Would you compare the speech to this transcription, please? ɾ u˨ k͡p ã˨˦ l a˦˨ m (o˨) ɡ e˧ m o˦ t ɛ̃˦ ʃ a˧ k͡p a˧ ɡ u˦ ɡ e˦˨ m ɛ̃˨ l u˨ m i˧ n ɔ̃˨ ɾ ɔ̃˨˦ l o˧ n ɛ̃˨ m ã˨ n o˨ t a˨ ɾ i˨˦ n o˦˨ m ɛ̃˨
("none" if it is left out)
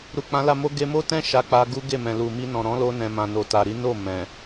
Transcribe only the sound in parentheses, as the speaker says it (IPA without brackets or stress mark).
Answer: o˧